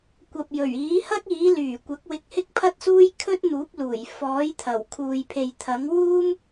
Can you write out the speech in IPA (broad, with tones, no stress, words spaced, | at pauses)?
kʷɐ˨p̚jɵ˨˩ɥiː˨˥hɐ˥k̚ iː˨˥lyː˨˩kʷɐ˨˥k̚ wɪ˧k̚hɪ˥k̚pʰɐ˥t̚suː˥j kʰɵ˥t̚ n̪uː˨˥p̚luː˨˩j fɔː˨˥jt̪ʰɐ˨˩w kʰuː˨jpʰe˨jt̪ʰɐ˨˥ŋ wuː˥m